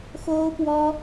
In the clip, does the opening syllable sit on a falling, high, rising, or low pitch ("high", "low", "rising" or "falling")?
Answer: high